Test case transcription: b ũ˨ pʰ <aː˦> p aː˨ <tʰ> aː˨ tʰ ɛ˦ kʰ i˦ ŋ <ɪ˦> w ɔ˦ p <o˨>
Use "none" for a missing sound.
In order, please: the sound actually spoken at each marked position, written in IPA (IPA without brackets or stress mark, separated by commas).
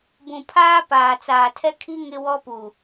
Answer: aː˦, t͡s, ɪ˦, u˨